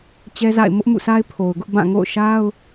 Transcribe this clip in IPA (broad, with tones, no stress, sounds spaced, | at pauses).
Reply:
t͡ɕ ɛ˦ z a̰˦˨ ɪ̯ m ʊ˦ ʔ m ṵ˦˨ s a˦ ɪ̯ pʰ o˨ ʊ̯ ɡ ʊ˦ ʔ b ã˦˨ ŋ o̰˦˨ ʊ̯ ʃ a˦ ʊ̯